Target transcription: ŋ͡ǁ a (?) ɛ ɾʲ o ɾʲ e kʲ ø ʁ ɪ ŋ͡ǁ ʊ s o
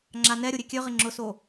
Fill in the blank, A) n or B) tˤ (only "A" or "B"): A